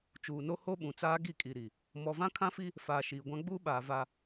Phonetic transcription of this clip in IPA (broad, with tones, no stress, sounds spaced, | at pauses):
t͡ʃ uː˨ n o˦ h o˦ ɓ ũ˨ t͡s aː˦ ɡ i˦˨ kʼ i˨ ɾ i˨ | m ɔ˨ v ã˦ kʰ ã˦ f i˦ | f aː˨ ʃ iː˨ ɡʷ ã˦ ɡ͡b uː˦ ɓ aː˨ v a˦